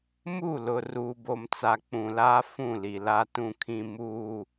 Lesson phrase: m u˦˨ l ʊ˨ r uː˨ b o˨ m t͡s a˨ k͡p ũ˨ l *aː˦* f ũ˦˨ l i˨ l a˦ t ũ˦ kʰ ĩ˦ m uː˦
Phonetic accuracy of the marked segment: correct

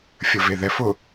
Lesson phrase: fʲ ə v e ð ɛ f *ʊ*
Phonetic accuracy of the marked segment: correct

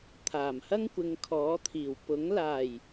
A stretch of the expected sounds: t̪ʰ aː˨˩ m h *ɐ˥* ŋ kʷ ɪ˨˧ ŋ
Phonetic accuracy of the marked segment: correct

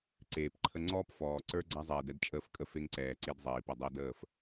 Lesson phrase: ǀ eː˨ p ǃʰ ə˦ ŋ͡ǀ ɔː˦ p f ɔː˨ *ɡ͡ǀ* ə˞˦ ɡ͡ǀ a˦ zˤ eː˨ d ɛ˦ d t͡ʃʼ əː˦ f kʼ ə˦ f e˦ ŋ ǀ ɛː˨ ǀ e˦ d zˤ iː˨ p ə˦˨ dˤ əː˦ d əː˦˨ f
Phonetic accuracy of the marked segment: incorrect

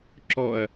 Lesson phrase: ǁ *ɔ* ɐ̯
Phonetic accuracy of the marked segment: correct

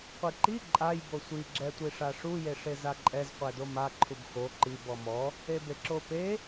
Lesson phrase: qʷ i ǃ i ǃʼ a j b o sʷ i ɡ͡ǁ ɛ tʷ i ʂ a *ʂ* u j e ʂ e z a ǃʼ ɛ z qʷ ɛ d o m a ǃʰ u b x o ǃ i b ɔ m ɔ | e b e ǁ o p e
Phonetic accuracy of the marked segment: correct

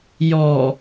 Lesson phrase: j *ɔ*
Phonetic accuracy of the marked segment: correct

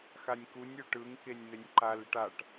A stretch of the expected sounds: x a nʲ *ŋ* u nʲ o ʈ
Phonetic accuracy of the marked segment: incorrect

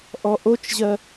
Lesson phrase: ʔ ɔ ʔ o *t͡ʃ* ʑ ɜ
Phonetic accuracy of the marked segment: correct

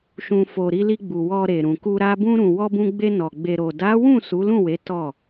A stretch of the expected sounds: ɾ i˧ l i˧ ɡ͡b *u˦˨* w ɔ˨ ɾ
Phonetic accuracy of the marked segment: incorrect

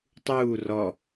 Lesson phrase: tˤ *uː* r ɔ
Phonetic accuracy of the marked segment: correct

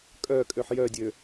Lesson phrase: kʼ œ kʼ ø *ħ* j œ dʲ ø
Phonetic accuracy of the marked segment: correct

